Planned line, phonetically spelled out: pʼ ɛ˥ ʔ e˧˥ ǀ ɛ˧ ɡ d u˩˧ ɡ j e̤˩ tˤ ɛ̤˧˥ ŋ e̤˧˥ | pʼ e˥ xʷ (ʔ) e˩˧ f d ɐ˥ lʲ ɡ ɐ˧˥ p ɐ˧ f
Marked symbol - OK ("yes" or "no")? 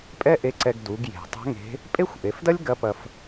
yes